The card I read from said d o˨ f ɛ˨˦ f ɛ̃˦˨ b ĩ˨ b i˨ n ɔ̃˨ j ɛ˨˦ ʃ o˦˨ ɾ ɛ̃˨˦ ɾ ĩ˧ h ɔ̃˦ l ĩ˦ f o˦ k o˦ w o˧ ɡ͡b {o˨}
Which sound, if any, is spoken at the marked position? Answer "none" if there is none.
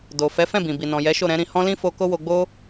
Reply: o˦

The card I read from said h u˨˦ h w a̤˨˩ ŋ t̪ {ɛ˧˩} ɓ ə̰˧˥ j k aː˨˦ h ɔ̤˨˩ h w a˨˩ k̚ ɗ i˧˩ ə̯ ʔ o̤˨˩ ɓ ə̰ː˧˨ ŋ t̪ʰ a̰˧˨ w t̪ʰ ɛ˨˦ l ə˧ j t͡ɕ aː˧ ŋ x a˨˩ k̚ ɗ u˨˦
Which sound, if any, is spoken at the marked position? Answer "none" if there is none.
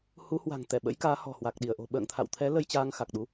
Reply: ɛ˧˩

